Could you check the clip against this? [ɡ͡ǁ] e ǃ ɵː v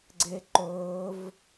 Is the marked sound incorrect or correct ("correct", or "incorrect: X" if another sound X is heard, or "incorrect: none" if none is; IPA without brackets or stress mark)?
incorrect: ɡ͡ǀ